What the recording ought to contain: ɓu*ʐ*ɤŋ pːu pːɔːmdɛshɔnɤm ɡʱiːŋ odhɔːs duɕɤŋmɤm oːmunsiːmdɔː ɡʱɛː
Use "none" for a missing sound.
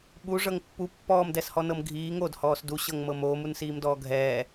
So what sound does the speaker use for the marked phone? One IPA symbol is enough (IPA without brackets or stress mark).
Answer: ʐ